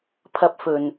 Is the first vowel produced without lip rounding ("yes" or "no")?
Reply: yes